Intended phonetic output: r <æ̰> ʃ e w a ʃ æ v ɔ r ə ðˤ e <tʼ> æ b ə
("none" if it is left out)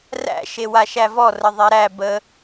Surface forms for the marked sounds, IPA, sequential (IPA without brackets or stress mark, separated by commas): æ̰, ɾ